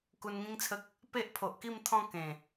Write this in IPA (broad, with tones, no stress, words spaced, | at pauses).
ku˧nŋĩ˦ŋt͡sʰə˦k̚ | pe˦ʔpʰo˨ʔki˥˧mt̪ʰɔ̃˥˧ kẽ˨˩